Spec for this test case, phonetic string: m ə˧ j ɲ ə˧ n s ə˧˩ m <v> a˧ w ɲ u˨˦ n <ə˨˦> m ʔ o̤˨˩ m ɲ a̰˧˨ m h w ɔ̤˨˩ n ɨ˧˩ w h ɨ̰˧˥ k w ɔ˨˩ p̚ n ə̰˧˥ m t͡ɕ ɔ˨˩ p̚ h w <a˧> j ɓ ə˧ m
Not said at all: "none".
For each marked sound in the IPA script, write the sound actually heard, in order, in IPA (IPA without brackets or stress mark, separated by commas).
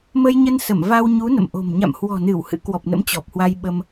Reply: v, ə̰˧˨, a˧